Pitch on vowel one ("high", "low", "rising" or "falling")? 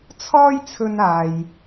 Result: high